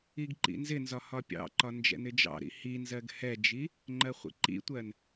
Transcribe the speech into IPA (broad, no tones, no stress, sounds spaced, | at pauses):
i ɡ ǃ ḭ n z ɪ n z ɒ h ɒ pʲ ɑ̰ ǃ ɒ n d͡ʒ ɛ̰ n ɪ d͡ʒ ɑ̰ ɾ ḭ h i n z ɜ ɡ h ɛ d͡ʒ i | ŋ͡ǃ ɜ χʷ ḭ ǃ ḭ tʷ ɜ n